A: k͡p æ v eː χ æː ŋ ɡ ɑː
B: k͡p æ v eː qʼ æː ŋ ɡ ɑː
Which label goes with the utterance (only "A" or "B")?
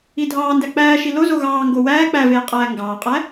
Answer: B